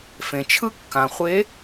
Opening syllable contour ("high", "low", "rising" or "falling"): low